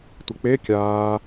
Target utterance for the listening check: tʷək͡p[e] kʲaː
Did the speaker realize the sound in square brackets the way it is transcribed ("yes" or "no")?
yes